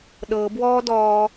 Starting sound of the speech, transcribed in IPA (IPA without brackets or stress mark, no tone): ɗ